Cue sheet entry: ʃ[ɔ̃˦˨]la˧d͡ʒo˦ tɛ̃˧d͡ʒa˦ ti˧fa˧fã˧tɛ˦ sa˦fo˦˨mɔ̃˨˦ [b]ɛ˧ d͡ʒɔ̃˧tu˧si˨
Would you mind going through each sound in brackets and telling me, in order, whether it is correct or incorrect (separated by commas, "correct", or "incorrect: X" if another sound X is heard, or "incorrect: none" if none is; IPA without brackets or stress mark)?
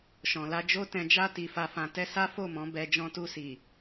incorrect: ɔ̃˨, correct